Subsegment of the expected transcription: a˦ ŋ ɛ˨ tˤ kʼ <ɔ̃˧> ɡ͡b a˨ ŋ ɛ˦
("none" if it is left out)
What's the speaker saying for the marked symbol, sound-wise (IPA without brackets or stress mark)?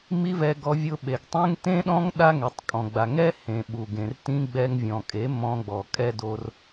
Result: ɔ̃˨